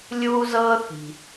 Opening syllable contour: high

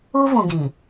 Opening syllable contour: high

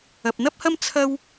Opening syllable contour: low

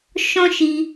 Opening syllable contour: high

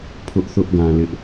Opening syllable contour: high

